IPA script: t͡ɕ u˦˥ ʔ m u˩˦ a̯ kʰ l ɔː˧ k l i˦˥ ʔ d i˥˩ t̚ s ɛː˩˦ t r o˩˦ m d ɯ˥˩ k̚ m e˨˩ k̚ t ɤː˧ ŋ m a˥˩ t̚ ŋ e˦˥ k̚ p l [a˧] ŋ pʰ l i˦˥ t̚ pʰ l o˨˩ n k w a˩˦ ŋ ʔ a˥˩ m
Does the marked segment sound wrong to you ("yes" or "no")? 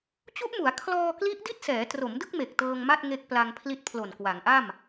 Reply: no